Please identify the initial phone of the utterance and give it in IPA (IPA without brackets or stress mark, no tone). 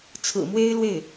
t͡sʰ